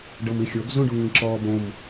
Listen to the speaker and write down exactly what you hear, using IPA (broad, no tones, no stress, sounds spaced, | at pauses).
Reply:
ɖ ɤ m i xʲ o ɡ z ũ ɖ u ŋ ĩ ǁ ɔː b õ m